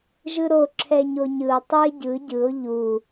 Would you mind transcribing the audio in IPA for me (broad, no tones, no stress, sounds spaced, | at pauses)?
ʒ ɯ ɾ o ǁʰ ɛ ɲ o ɲ ɯ o̯ tˤ o e̯ ɟ ɯ ɟ ɯ o̯ ʎ u